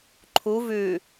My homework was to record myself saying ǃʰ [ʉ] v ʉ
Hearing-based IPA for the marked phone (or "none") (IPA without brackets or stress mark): u